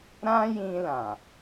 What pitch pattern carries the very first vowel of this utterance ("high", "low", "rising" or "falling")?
high